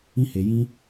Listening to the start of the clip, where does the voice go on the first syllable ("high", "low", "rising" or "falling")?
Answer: high